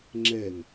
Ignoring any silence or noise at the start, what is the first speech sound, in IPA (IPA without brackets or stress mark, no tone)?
ŋ͡ǁ